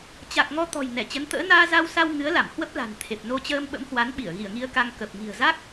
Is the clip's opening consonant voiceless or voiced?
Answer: voiceless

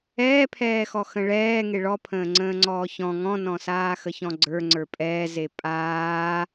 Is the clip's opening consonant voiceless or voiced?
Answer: voiceless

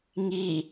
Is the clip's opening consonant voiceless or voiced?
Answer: voiced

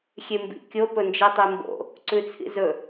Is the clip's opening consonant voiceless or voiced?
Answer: voiceless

